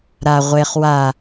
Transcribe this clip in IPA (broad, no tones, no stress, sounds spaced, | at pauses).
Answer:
ɾ a ʁʷ e χ w a